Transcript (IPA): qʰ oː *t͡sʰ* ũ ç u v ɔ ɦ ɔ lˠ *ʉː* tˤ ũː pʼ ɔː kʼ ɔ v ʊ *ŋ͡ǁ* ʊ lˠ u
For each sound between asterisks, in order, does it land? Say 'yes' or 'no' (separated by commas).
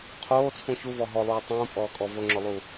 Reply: yes, no, yes